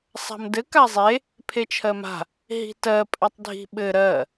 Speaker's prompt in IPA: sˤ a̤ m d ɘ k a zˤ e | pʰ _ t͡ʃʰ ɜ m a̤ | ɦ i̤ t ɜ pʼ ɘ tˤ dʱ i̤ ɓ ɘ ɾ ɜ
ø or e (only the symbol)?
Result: e